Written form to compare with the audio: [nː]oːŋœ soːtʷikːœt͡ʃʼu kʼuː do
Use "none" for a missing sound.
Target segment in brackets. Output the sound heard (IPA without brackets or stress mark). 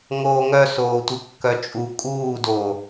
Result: ŋ